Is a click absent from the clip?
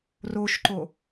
no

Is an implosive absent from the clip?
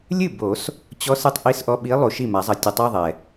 no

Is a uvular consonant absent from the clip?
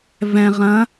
no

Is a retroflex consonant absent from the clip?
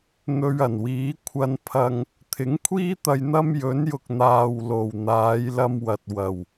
yes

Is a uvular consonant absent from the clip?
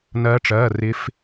yes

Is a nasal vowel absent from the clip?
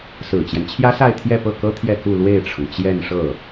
yes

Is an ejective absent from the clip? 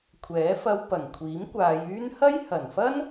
yes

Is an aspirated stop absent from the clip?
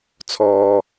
no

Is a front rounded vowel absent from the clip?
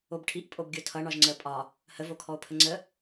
yes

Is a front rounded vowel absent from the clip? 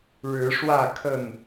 yes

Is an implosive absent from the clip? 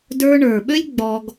no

